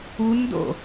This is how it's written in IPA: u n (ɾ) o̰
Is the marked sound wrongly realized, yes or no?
yes